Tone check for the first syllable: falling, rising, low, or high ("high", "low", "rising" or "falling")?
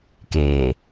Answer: low